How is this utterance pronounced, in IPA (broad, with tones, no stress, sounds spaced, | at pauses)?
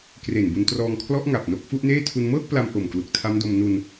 k r e˨˩ n b u˧ n t r ɔː˧ ŋ kʰ l ɔ˦˥ ʔ ŋ a˨˩ p̚ n o˦˥ k̚ f u˦˥ ʔ n eː˥˩ tʰ u˧ n m ɤː˥˩ k̚ p l a˧ m ʔ o˨˩ m k l u˨˩ k̚ tʰ a˦˥ m d o˧ m n u˧ n